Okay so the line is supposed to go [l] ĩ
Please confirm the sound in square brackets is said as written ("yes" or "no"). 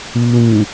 no